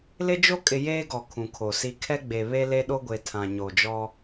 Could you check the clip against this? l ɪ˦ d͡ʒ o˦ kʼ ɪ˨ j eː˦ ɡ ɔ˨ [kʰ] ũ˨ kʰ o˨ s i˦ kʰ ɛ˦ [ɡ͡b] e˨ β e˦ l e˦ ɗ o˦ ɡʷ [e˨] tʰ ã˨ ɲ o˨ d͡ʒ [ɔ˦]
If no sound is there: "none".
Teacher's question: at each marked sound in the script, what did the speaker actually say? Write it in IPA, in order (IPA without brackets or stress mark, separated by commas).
kʰ, ɡ͡b, e˨, ɔ˦